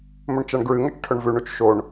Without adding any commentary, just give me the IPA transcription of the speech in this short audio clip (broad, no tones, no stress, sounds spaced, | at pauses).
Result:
m ɵ ɳ t͡ʃ a ɳ ɡ ɹ ɨ ŋ ɐ t͡ʃ ʈʰ ɵ ɳ v ʉ ɳ u t͡ʃ ʃ o ɳ